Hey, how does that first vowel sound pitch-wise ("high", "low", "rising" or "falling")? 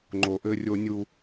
low